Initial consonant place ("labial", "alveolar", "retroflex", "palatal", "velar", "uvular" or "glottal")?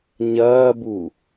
palatal